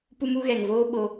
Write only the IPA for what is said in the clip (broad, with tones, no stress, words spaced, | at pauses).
pu˦mu˦ ɣɛ˨ŋvoː˦ ɓo˧